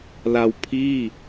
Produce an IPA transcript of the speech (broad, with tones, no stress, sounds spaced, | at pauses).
l a˧ w pʰ iː˥˩